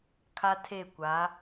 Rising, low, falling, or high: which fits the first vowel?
high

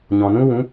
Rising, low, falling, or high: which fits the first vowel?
low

